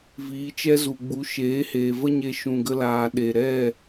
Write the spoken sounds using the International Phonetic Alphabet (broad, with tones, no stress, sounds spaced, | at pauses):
v iː˨˦ t͡ʃ ɛ˦ z u˨ ɡ͡b u˨˦ ʃ eː˨˦ h eː˨ v ə˦ ɲ e˧ ʃ ũ˨ ɡ ə˧ l aː˨ ɗ e˨ ɾ ɛ˦˨